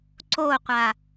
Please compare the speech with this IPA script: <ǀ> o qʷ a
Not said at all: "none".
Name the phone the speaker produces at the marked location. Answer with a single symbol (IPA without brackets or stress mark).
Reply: ǀ